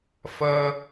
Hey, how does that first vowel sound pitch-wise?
high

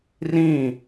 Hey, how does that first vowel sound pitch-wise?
falling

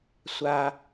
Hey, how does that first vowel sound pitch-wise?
low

